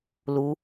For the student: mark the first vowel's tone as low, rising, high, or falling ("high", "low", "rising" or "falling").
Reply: high